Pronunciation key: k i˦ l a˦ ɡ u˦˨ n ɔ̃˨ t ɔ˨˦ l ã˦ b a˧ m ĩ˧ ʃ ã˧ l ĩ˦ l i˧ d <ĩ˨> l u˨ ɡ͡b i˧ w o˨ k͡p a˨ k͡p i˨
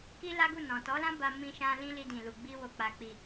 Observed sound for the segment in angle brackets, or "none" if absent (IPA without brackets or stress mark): ĩ˨